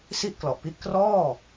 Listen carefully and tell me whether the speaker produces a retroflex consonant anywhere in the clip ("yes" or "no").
no